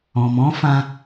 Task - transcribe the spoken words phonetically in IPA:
ɔ̃˨ m ɔ̃˨˦ f ã˧

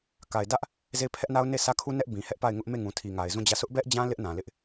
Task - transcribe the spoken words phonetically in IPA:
k a˨ ɪ̯ d ä˦ ʔ | z e˦˨ ɪ̯ pʰ ɛ˦ ʔ n a˦ ʊ̯ n e˦˨ sʰ ä˦ kʰ u˦ n ɛ˦ ʔ b ĩ˨ h ɛ˦ ʔ p a˦˨ ɪ̯ ŋ ʊ˦ ʔ m e˦˨ ŋ ũ˨ tʰ i˨ ŋ a˨ ɪ̯ z ũ˦˨ d͡ʑ ä˦˨ sʰ ʊ˦ ʔ b ɛ˦ ʔ d͡ʑ ã˦ l ɪ˦ ʔ n ã˨ l ɪ˦ ʔ

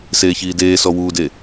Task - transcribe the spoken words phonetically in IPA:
s eː ç iː d eː s ɔ w uː d e

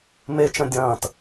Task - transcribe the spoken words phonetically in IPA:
m e t͡ʃ ɐ̃ dʲ ɐ̃ː t

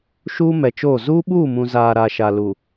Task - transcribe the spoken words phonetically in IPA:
ʃ uː˦ m ɛ˨ t͡ʃ oː˦˨ z uː˦ ɓ uː˦˨ m ũ˨ z aː˨ ɾ a˨ ʃ a˨ l u˨

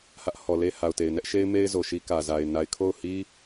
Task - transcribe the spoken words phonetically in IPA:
h ä˦ ʔ h ɔ˨ l e˦ h a˨ ʊ̯ t e˨ ɪ̯ n ɛ˦ ʔ ʃ e˦ ɪ̯ m e˦ ɪ̯ z o˨ ʃ i˦ k ä˨ z a˨ ɪ̯ n a˨ ɪ̯ kʰ o˦˨ ʊ̯ h i˦

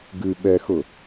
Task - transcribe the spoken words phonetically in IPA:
ɡ ɨ ɓ ɛ x ʊ

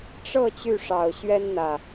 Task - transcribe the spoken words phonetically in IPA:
ʈ͡ʂ ɤ˥˨ t͡ɕ y˥˨ ʂ ɑ˨˩ ʊ̯ ɕ ɥ ɛ˦ n n̪ ä˨˩

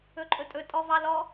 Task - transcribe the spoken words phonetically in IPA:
ɵ ǃʼ ɵ tʼ ɵ tʼ ɔ v ɑ l ɔ

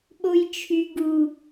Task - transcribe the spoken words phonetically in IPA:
ɓ o j t͡ʃʰ y ɡ u

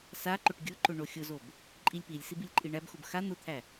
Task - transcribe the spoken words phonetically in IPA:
s a ǃ ʊ ʈ ɡʲ ʊ ǃ ʊ ɳ o xʲ ʊ z o b | ǃʼ i lʲ p i lʲ s i b i lʲ ǃʼ i ɳ æ b x ʊ b x a n̪ ʊ t̪ʰ æ

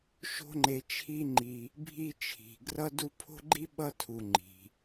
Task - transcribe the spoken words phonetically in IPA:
ʃ o̤˦ ŋ͡ǃ e˨ t͡ʃʰ i˦ ŋ͡ǃ i˨ | bʱ i˦ t͡ʃʰ i̤˩ ɡ r ʌ˥ d u˦ pʰ o̤˥ ɡ͡ǃ i˥ ɓ ʌ˥ tʰ u˨ ŋ͡ǃ i̤˩

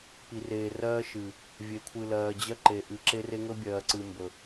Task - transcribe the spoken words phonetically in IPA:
p i˨ r eː˨ r ɜː˦ ʃ ɨ˨ | vʲ e˨ kʷʰ ɨ˨ l ɜː˨ d͡ʑ ɜ˦ ǃ e˨ ʔ ɨ˨˦ ǁ e˦ r e˦ ŋ ɵ˦ bʲ ɜː˨ ǀ ɨ˨ m b ɵ˨

